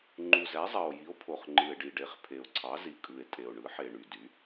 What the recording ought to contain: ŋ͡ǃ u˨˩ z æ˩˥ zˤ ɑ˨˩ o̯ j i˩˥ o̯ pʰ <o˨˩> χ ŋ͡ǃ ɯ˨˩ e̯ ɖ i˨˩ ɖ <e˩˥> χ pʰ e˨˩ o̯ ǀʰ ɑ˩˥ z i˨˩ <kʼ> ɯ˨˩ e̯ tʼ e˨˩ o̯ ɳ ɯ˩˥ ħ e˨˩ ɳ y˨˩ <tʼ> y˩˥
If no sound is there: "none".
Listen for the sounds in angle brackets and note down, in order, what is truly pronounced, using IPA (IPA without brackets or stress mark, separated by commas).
o˨˩, e˩˥, kʼ, d